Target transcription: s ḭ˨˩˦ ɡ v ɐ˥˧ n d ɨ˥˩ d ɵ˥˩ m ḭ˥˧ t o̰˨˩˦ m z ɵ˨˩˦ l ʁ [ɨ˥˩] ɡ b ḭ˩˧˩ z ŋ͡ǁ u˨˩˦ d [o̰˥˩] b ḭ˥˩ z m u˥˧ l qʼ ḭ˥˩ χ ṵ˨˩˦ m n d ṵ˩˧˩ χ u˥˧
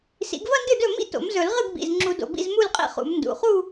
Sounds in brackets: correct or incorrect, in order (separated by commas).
correct, incorrect